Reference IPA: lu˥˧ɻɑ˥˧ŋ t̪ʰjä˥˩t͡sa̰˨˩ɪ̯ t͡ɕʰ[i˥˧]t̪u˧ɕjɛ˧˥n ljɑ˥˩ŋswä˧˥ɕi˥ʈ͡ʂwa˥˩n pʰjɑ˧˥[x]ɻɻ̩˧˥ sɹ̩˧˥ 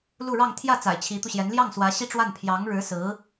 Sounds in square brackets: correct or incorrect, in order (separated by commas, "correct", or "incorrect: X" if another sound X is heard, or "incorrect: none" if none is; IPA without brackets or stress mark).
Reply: incorrect: i˧˥, incorrect: ŋ